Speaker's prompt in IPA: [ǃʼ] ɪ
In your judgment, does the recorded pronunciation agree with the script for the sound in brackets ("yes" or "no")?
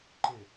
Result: no